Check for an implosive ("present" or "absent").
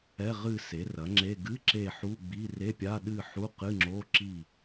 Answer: present